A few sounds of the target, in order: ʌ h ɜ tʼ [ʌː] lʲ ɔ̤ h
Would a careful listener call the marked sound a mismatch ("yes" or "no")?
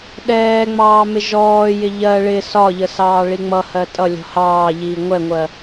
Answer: yes